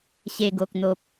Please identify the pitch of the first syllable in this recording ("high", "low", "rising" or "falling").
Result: low